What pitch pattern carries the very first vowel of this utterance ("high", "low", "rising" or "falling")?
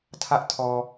high